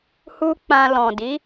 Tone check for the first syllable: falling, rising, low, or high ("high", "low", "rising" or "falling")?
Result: high